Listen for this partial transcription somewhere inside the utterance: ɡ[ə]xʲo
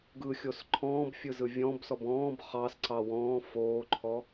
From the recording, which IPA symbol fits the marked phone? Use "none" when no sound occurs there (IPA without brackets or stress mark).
ɯ